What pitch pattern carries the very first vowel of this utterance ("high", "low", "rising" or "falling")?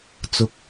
low